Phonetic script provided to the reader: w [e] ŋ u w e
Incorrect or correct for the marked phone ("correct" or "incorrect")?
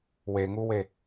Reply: correct